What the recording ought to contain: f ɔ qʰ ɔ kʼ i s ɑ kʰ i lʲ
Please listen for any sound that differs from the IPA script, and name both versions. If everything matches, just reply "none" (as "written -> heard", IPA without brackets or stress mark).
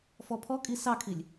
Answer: qʰ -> pʰ